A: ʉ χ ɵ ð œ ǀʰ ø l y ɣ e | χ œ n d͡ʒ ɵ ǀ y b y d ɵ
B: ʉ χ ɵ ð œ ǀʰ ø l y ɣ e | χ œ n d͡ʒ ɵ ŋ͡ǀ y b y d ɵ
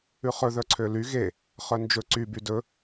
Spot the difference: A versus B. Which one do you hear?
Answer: A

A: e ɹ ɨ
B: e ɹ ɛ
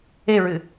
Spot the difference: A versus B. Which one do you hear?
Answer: A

